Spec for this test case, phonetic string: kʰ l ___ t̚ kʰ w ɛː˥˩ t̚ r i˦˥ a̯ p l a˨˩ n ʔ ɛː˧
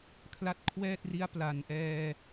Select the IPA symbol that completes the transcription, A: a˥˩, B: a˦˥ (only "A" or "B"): B